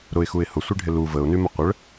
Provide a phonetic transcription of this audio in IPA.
ɾ ʊ ɪ̯ x u ɪ̯ h ʊ sʷ i ɖʱ ɪ l u v ə ʊ̯ n y m ə qʷ ə ɭ

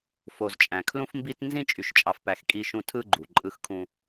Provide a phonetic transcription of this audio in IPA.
f o˨ z t͡ʃʼ æ̃˨ kʰ l ũ˦ f m b i˦ t n z ĩ˦ t͡ʃʼ y˨ ʃ t͡ʃʼ ɑ˨ f p æ˨ x kʼ i˦ ʃ ũ˦ tʰ ɯ˦ ɡ͡ǃ u˨ ǃʼ ɯ˦ x kʰ ũ˦

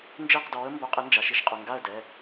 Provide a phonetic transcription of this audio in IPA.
n d͡ʒ ɪː˥˨ q d ɔː˨˥ ə̯ m b o˨˥ qʼ ɪ˨˥ n d͡ʒ a˩˧ ʃ i˨˥ ʃ qʼ ʊ˩˧˩ ŋ ɡ a˥˨ ə̯ d ɛ˩˧˩

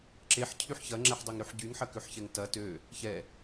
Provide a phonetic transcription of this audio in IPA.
ǁ e ħ cʰ y ħ ç ɐ ŋ͡ǁ ɛ ħ dˤ ø ŋ ɾ y ħ ɟ y ŋ ħ ɐ k ø ħ ç ɛ ŋ t ɐ t ø | ç ɛ

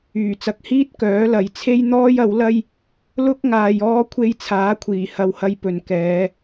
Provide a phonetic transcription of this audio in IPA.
yː˨˩ t͡s ɐ˨ k̚ h iː˥ t̚ k œː˨˥ l ɐ˨˥ j t͡sʰ e˥ j n̪ ɔː˥ j ɐ˨˥ w l ɐ˥ j | l ʊ˥ k̚ ŋ aː˧ j ɔː˥ kʷʰ e˧ j t͡sʰ aː˨˥ kʷʰ iː˨˩ h ɐ˧ w h ɐ˧ j p ɵ˨ n k ɛː˨˧

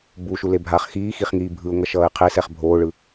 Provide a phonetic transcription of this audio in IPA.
b u ʃ u l e bʱ aː χ x iː x i χ ŋ iː bʱ ɯ ʊ̯ ŋ ʌ ʃ ʌː ɪ̯ qʰ e s ɛ χ bʱ oː ɭ ɯ

